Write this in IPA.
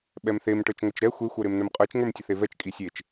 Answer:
ɓ ɛ m θ e m ʈ ə˞ t͡ʃ ŋʷ e t͡ʃ ɾ ɛ xʷ e xʷ ə˞ ɾ e m n ə˞ m qʼ ə˞ t͡ʃ ŋ ə˞ m tʲ ə θ e v ɛ t͡ʃ kʼ i sʲ e t͡ʃ

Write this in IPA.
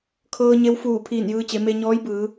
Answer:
kʰ ɤː˧ ɲ e˧˥ w f uː˧˩ pʰ iː˧˩ n j ɯː˧ t͡ɕ e˩˧ m e˧ ɲ ɔː˧˥ j b ɯː˩˧

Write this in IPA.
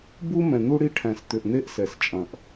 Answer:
b u˦ m ɛ̃˨ n̪ u˦ ɽ i˦ ʈʰ æ̃˨ s t̪ ʏ˨ ʔ n̪ e˦ ʔ s ɛ˨ s t͡ʃʼ ɐ̃˨ ʔ

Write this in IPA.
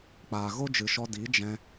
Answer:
k͡p aː˨ ɣ o˦ d͡ʒ ɨ˨ ʃ ɔ˧ d i˨˦ d͡ʒ ɛ̃˧

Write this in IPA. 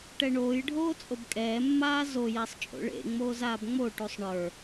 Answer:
ʈ ɛ ɳ oː j ɖʱ oː t͡sʼ o b kʼ ɛː mː aː z o j ɛ sˤ t͡ʃʼ o̰ ɭ ḛ ŋ͡m oː z aː b ŋ͡m o ʈ u sˤ ɳ ə˞

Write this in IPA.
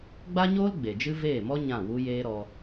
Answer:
ɡ͡b a˦ ɲ oː˦ l ɡ͡b e˨ d͡ʒ ɨ˦ v eː˦˨ m ɔ˦ ɲ ã˦˨ w u˦ j eː˦ ɾ ɔ˧

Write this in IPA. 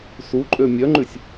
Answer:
s u ǃʼ ø mʲ œ ŋ͡ǃ ʉ sʲ

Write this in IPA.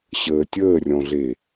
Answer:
ɕ əː tʲ əː rʲ ɔ̃ ɮ e

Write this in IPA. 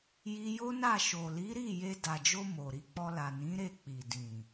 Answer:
j i˧ j o˦ n a˦˨ ʃ o˨ l i˨˦ ɾ i˦˨ j e˧ d a˨ d͡ʒ o˧ m o˨ ɾ i˧ k͡p ɔ˧ l a˨ n ĩ˨˦ ɾ e˦˨ k͡p i˨ d ĩ˨

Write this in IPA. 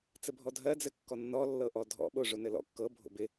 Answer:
t͡s ɘ bʱ ɔ dʱ ɜ d͡z ɘ kː ɔ nː ɔ lː ɤ ʔ ɔ dʱ ɔ̰ ɓ o ʐ o n ɘ l ɔ̰ kː ɤ bʱ o̰ b ɪ

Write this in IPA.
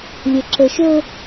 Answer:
lʲ ə ǁ ə ʃ ɵ

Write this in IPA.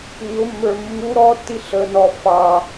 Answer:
ɲ ʊ mː ə˞ mː u ɾ ɔ tː i ɬ ə n ɔ f ɑ

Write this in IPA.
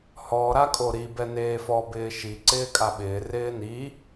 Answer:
h ɔ ɾ a kʼ o ɾ i b ɛ n eː f ɔ b ɪː ʃ i ǀ ɪː kʼ a ɓ ɪː r ɪː n i

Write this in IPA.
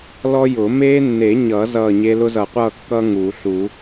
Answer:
l ɔ˦ j ʊ˨˩˦ m eː˦ nː e˨˩˦ ɲ ʌ˨˩˦ z ʌː˦˨ ɲ e˦ l ʊ˦ z ʌ˨˩˦ qʷ ʌː˦˨ kː ʌː˦ ŋ uː˨˩˦ ɬ u˨˩˦

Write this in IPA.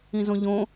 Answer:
ĩ z õ ʎ õ

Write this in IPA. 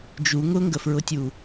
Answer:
d͡ʒ u ŋ ʊ ŋ ɡ ə f ɹ ʊ tʲ u

